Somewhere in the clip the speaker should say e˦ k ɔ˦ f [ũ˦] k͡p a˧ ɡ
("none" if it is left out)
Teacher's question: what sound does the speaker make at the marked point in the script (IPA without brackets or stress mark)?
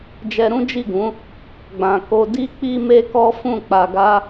ũ˦˨